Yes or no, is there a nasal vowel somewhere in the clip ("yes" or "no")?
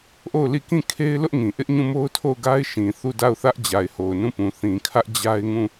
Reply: yes